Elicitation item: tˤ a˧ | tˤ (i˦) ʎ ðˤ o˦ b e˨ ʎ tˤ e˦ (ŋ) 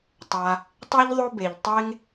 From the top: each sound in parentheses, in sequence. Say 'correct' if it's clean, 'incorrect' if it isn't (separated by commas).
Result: correct, correct